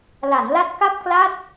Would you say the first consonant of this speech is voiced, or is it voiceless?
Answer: voiced